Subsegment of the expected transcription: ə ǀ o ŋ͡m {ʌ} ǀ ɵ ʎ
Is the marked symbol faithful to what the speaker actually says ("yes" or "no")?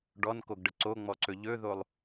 no